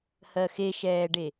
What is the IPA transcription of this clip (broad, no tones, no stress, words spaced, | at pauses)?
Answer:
hɜxeʃɛːɖe